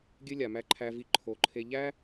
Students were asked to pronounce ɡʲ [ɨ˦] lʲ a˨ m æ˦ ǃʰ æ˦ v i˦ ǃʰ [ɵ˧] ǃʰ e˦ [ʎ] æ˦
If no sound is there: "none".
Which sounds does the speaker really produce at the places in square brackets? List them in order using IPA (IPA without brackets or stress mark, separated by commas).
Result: ɨ˦, o˧, ʎ